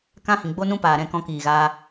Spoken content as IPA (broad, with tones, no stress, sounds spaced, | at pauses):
k ã˦ h ĩ˨ ɡ͡b o˦ n ũ˦ p aː˨ ɾ ɛ̃˦˨ k ɔ̃˧ k iː˨ ɣ a˧